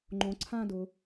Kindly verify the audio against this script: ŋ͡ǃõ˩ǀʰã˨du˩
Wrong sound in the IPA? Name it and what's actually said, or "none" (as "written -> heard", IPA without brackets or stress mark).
u˩ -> ʊ˩